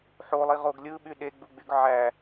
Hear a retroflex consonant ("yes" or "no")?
no